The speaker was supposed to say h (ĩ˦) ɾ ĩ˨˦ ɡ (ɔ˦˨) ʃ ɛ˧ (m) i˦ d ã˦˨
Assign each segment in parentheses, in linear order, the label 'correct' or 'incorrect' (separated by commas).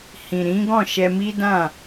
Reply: incorrect, incorrect, correct